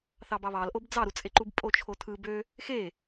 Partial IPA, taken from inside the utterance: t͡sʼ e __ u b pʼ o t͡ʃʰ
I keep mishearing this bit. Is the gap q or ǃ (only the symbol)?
ǃ